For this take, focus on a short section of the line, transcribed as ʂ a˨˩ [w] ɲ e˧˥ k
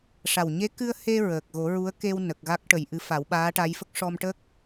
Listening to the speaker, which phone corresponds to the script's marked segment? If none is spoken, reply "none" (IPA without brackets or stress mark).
w